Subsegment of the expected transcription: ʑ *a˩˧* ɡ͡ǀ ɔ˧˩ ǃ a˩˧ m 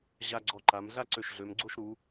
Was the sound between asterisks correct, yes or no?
no